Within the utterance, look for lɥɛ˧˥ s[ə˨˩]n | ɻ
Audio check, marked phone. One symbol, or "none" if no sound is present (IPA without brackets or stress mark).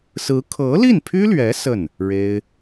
ə˥˩